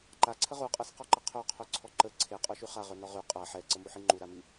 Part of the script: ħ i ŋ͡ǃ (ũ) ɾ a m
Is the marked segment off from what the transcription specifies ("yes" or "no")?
yes